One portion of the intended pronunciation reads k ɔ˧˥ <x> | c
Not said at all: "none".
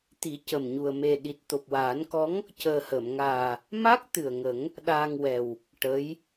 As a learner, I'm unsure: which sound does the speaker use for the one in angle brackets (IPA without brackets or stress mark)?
ŋ